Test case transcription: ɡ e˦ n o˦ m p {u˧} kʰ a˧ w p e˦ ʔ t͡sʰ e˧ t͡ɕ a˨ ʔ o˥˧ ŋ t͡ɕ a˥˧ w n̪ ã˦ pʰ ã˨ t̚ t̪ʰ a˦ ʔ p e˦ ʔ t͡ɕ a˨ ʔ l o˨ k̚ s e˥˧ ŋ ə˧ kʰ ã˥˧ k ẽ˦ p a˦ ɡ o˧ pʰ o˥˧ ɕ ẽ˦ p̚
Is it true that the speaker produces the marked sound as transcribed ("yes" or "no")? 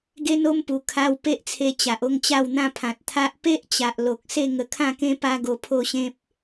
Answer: no